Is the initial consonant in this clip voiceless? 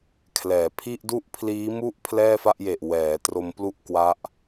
yes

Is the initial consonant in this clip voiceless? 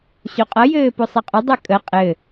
yes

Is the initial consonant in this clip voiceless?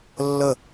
no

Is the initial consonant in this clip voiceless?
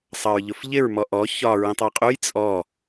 yes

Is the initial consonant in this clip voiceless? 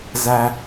no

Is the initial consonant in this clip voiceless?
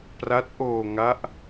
yes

